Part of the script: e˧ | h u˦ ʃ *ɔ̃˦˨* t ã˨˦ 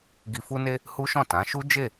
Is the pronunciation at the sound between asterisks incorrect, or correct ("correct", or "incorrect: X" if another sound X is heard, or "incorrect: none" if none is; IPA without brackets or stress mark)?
correct